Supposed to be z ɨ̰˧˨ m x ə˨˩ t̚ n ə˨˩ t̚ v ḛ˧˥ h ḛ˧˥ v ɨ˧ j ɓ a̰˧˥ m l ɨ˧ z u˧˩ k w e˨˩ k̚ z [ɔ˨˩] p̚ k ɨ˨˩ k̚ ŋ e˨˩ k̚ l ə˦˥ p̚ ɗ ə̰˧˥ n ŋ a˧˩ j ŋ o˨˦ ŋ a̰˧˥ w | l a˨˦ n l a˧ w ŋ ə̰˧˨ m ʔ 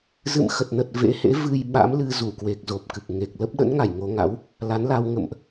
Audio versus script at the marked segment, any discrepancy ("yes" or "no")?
yes